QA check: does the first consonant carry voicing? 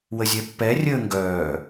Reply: yes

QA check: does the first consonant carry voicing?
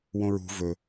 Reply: yes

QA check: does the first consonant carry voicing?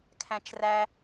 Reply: no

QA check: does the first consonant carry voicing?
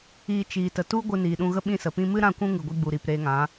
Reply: no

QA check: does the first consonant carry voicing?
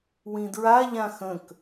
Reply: yes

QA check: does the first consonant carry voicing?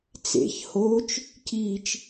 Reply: no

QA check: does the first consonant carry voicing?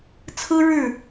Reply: no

